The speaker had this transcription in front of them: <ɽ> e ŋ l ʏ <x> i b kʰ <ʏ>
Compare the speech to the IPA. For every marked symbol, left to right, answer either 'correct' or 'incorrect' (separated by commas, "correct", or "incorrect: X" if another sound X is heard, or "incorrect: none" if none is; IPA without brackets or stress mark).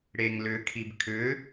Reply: correct, incorrect: kʰ, correct